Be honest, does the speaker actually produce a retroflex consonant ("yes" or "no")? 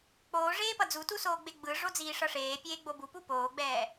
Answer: yes